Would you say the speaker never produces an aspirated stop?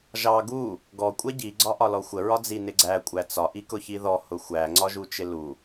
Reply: yes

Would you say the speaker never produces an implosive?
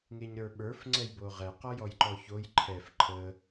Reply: no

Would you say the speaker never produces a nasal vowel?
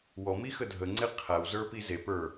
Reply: yes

